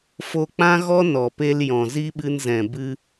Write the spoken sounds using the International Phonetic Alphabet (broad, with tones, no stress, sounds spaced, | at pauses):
f o˧ k͡p ã˦ ɣ ɔ˦ n ɔ˨ p e˧ l j ɔ̃˨ z i˦ ɓ ɨ˧ n z ɛ̃˨ b ɨ˧